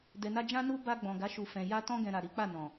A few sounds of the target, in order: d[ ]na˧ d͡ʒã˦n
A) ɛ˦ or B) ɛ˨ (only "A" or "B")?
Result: B